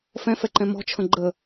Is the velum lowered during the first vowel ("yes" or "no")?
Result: yes